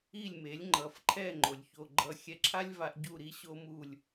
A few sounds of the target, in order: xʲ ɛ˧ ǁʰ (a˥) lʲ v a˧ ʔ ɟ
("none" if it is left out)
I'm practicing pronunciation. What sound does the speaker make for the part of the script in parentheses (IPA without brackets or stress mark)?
a˥